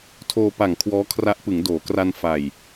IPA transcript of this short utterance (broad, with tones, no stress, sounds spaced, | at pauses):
tʰ oː˧ p a˨˩ ŋ kʰ w ɔː˦˥ kʰ r a˦˥ ʔ p ɯ˩˦ ŋ d oː˩˦ k r a˧ n f a˨˩ j